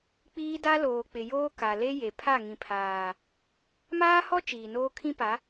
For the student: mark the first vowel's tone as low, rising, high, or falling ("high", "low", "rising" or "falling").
high